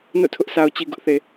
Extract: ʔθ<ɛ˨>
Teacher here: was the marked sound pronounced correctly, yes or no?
no